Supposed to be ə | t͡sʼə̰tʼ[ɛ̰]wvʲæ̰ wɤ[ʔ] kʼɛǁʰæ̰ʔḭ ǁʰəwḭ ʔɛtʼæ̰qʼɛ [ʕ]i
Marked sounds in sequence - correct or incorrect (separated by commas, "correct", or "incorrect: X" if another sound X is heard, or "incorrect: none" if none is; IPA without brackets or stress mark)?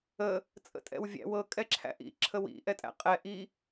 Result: correct, incorrect: none, incorrect: ʔ